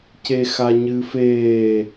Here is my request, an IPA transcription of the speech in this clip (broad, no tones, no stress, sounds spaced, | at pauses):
c e x a ɲ ɨː f eː